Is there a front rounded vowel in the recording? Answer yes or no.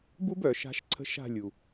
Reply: yes